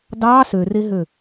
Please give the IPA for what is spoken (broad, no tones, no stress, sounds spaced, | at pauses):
d ɑ s ø r e ɦ ø